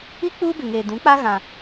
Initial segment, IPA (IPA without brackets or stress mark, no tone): i